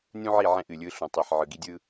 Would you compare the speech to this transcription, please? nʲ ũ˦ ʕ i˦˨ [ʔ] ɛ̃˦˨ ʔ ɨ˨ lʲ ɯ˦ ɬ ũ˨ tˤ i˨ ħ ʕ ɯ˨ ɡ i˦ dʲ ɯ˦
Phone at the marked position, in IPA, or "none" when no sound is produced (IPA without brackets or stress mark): ʕ